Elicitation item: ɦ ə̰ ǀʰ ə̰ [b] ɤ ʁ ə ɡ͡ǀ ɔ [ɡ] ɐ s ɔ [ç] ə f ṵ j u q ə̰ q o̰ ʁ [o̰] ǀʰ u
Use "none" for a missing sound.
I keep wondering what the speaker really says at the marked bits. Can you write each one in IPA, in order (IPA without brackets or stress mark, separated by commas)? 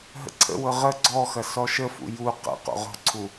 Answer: w, x, ʃ, o̤